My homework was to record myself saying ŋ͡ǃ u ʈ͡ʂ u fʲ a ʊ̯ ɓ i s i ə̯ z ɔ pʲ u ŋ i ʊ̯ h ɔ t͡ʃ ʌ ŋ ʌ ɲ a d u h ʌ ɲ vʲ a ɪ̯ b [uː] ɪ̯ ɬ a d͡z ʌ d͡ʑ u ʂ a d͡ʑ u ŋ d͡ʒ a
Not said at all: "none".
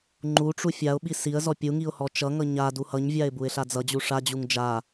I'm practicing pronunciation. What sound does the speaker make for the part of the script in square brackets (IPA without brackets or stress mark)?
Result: u